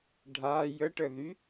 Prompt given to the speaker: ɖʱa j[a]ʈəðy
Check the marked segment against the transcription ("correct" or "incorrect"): incorrect